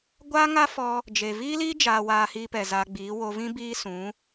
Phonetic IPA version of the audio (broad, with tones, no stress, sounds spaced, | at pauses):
ɡʷ aː˦ ŋ a˦ f ɔ˧ | d͡ʒ e˨ v iː˦ l iː˦ d͡ʒ aː˧ w aː˧ h iː˧ p ɛ˨ z a˧ ɡ͡b iː˨˦ w o˧ v ĩ˦ b iː˦ s ũ˨˦